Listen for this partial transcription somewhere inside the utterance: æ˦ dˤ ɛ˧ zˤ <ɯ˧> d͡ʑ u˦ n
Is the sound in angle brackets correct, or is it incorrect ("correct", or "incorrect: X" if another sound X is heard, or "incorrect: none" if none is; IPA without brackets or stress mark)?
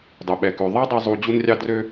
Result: incorrect: u˧